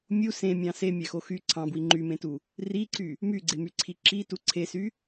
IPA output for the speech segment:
mʲ u s ẽ mʲ ɑ̃ s e mʲ æ x o x y ǀʰ ɑ̃ b w i ŋ͡ǃ y m ẽ t u | r i ǀ y | m y ɡ͡ǀ e m y ǀʰ i ǁ i t u ǀʰ e s y

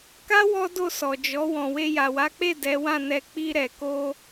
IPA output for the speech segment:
k a˦ w ɔ˦ d o˦˨ s ɔ˨ d͡ʒ ɔ˨˦ w ɔ̃˧ w e˧ j a˨ w a˨˦ k͡p e˦˨ d ɛ˨˦ w ã˦˨ n ɛ˧ k͡p i˧ ɾ ɛ˨ k o˧

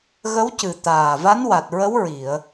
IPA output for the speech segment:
ɣ ə˧˥ w c ɨ˨˩ t̪ aː˨˩ v a˧˥ n w a˨˩ t̚ ɹ ə˧˥ w ɹ i˨˩˨ ə̯

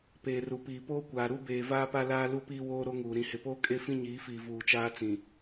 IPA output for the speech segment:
p eː˨ r u˨ p iː˨ p oː˦ kʷ aː˨ ɾ u˦ b eː˨ v aː˦ p a˦ l aː˦ l u˦ p iː˦ w oː˦ ɾ o˦ ŋ uː˨ ɾ ĩ˨ h ɪ˨ p oː˦ kʼ e˦ f ĩ˦ ɲ iː˨˦ f iː˨ v uː˨ t͡ʃ aː˦ t͡s ĩ˨

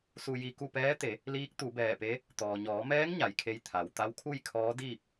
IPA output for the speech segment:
s u˧ j i˧ k u˥˨ p ɛː˧˥ t̪ e˩˧ | l iː˧˥ k̚ t̪ u˩˧ b ɛː˧˩ p e˧˥ | t̪ ɔː˩ ɲ ɔː˩˧ m ɛː˧˥ ŋ ɲ a˩ j kʰ e˧ j t̪ʰ a˩ w t̪ a˧˥ w kʰ u˥˨ j kʰ ɔː˧˥ d iː˥˨ p̚

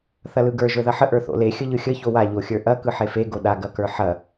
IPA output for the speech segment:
θ ɐ l ɯ ɡ ə˞ ʒ ə˞ ð ɐ ħ ə ʔ ə˞ θ o̰ l e xʲ ə ʎ ɯ xʲ ə ç o w a ʎ o xʲ ə˞ ʔ ɐ k ɯ ħ e f e ɡ o ɗ a ɡ ɐ k ə˞ ħ ɐ

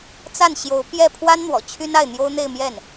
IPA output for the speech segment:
t͡s a˥˩ n ɕ j o˧˥ ʊ̯ p j ɛ˥˩ pʰ w a˥ n n̪ w ɔ̰˨˩ t͡ɕʰ y˥ n a˥˩ ɪ̯ n̪ j o˥ ʊ̯ n̪ e˥˧ ɪ̯ m j ɛ˥˩ n

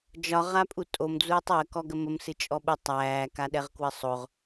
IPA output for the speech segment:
d͡ʒ ɒ ʁ a pʼ u tʼ o m d͡z uː tˤ j ə k ɔ ɡ ə m ə m s ɨ t͡ʃʼ ɔ ɓ u tˤ æː k a ɗ ɛ ʁ k w ə sˤ o ʁ

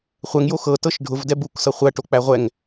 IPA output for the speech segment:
χʷ ɛ ŋ j o x ɤ t ɤ ʃ ɖʱ ʊ v d ɛ b u k s ɤ χʷ æ ʈ o k͡p æ ʁʷ ɛ ŋ

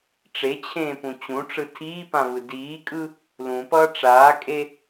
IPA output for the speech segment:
ʈ͡ʂ e t͡ɕʰ ẽː p ũ t͡ɕ ũ ʈ͡ʂ ɯ tʰ iː p ã v ɯ d iː kʼ ɯ | l ũ p ʌː ʈ͡ʂ aː kʼ e

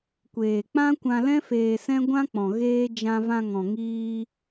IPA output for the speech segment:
kʷ eː˨ k͡p ã˦ kʷ ã˧ l ɛ̃˦ f eː˧ s ɛ̃˦ ɡʷ ã˦ k͡p ɔ̃˨ ɣ eː˦ d͡ʒ ã˧ v ã˧ ŋ ɔ̃˨ ŋ iː˧

